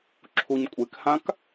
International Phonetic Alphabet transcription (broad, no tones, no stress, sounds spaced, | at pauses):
ǁʰ u ɲ kʷʼ e k h ã k